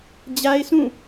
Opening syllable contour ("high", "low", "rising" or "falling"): high